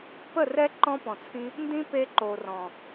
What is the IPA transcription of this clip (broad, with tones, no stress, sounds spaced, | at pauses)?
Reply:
p ə˦˨ r ɛ˦ ǃ ɔ̃˦ p ɔ̃˨ t͡sʰ ĩ˦ | n d ĩ˦ p e˧ ǃ o˨ r ɔ̃˨